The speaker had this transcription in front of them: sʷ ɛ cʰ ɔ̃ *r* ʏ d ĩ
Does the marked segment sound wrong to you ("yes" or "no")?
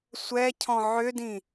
yes